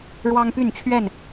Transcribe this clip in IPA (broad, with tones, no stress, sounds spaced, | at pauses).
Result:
ɻ w ɑ˦ ŋ p y˥˨ n t͡ɕʰ ɥ ɛ˥˨ n